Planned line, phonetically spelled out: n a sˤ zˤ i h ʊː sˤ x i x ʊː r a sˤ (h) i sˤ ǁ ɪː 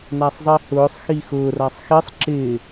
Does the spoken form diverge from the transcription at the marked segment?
yes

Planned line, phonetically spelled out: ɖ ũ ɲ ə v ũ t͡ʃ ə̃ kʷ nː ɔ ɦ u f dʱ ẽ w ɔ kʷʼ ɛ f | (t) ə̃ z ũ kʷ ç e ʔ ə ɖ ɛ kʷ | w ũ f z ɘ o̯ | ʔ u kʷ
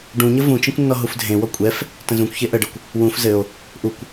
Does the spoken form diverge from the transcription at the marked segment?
no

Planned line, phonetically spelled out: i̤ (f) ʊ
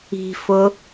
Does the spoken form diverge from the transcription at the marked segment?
no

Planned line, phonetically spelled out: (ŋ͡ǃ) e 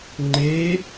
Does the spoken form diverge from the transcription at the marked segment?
no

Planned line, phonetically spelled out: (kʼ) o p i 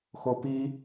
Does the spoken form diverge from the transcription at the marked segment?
yes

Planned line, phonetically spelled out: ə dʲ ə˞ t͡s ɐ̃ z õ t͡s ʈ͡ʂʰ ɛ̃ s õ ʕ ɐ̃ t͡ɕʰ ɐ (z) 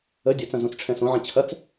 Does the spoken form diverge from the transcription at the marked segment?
yes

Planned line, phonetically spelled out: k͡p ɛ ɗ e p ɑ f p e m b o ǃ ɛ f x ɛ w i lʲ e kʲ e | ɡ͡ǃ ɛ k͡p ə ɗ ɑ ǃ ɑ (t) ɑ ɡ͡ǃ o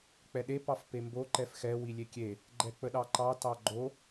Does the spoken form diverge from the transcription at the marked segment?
no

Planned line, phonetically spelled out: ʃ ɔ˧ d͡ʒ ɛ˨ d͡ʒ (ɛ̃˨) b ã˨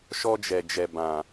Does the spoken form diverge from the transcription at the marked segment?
yes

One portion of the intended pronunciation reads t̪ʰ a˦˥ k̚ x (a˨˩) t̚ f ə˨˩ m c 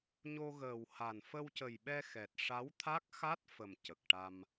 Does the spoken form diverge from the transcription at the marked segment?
yes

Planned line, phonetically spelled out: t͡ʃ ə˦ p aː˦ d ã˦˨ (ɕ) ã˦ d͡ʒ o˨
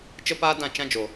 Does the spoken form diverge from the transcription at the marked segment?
yes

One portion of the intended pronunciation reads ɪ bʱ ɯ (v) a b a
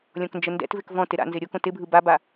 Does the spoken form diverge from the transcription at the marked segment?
yes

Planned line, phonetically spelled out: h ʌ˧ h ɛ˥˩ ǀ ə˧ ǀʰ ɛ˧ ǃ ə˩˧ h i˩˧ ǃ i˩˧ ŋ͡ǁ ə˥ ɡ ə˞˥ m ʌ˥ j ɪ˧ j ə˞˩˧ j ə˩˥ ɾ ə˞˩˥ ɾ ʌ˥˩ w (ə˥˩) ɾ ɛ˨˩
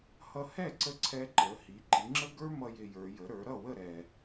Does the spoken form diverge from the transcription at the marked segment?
no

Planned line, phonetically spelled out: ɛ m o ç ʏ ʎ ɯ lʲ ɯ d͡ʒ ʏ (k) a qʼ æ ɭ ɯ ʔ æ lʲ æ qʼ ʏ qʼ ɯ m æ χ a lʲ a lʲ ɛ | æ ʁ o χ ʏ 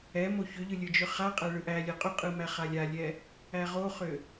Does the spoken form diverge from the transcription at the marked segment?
yes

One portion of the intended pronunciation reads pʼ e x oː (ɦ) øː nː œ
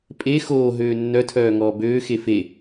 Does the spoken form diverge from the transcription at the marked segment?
no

